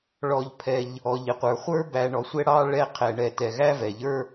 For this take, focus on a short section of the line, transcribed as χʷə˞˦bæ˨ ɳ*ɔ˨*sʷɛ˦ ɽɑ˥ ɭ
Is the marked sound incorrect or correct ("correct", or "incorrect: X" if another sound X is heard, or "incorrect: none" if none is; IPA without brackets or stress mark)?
correct